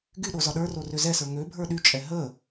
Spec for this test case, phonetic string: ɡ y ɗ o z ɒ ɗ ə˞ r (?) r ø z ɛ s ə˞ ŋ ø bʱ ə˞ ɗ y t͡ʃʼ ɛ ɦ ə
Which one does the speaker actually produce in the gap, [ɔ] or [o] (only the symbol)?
o